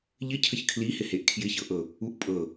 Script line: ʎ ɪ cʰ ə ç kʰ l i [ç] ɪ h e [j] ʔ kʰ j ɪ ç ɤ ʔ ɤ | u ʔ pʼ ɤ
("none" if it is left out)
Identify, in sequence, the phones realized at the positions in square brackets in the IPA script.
h, none

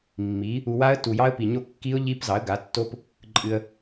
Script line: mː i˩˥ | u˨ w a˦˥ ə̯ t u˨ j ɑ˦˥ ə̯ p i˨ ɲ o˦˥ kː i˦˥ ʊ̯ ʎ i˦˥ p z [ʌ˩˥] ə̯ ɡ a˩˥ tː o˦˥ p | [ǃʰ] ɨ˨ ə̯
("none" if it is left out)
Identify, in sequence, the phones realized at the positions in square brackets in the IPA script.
ɑ˩˥, ǃʼ

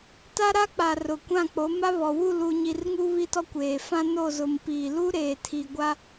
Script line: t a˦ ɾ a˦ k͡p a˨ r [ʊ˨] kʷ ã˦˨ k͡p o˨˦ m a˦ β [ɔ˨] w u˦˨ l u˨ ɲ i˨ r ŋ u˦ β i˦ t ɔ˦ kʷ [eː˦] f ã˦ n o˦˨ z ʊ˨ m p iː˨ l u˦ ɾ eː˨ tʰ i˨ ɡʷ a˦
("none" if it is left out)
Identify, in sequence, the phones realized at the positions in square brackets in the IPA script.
ʊ˨, ɔ˨, eː˨

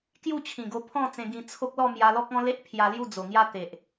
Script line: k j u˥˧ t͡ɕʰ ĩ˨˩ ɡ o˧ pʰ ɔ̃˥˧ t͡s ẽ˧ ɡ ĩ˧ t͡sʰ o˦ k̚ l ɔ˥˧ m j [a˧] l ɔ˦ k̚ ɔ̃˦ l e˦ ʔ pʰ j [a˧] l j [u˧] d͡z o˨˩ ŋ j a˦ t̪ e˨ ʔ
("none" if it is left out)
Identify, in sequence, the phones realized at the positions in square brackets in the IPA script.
a˧, a˧, u˥˧

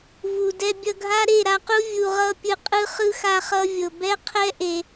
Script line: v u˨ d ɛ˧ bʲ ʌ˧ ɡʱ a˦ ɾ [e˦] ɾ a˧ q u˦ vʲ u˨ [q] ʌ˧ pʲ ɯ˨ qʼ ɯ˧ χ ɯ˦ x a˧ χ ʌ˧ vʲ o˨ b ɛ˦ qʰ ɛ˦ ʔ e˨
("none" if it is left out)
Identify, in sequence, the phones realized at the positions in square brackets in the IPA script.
e˦˨, ʁ

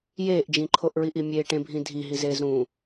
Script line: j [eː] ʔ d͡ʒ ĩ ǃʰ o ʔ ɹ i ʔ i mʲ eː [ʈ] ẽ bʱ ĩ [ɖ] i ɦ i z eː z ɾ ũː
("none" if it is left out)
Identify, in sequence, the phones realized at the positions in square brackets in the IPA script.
eː, ʈ, dʱ

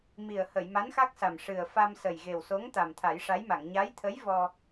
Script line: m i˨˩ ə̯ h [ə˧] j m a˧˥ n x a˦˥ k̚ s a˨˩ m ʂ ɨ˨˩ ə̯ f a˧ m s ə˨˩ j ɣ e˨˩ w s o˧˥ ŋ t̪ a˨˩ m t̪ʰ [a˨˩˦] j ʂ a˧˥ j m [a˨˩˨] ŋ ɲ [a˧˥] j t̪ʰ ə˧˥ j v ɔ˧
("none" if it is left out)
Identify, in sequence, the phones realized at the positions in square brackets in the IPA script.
ə˨˩˨, a˨˩˦, a˨˩˨, a˧˥

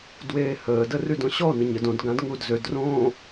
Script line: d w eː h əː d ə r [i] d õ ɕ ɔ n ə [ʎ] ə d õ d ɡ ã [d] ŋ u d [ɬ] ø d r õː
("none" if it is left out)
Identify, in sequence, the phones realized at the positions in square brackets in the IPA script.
y, ɲ, d, z

